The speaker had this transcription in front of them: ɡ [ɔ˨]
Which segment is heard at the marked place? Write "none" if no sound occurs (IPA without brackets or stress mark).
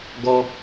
ɔ˦